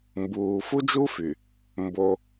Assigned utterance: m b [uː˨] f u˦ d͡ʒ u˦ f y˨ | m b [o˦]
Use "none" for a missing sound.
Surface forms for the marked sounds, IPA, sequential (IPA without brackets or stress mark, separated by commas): uː˨, o˦